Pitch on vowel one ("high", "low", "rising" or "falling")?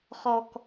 low